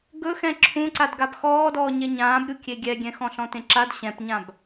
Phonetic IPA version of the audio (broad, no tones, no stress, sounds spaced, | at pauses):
ɡ ɵ x ɛ̃ ǁʰ ũ ǀ a d ɡ a b x ɔː d ɔː ɲ ɛ ɲ ãː b ɾʲ u kʲ e ɡʲ ɛ ɡʲ ɛ̃ x ɔ̃ ɬ ɔ̃ t ẽ ǁ a d ɕ ɛ̃ p ɲ ã b